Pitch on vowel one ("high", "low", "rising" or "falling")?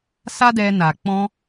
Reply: high